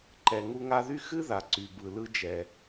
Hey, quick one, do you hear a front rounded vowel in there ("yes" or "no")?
yes